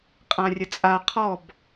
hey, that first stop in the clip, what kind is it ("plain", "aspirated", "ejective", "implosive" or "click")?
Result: ejective